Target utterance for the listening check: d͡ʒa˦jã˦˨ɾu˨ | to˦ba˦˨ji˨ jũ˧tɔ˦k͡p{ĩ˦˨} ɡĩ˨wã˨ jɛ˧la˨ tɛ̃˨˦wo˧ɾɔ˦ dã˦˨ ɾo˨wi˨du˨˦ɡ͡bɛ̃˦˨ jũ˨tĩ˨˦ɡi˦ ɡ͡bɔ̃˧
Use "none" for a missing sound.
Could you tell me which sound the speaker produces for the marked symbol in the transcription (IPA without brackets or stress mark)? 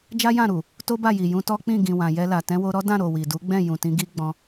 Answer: ĩ˦˨